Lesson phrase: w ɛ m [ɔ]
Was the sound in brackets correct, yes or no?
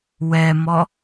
yes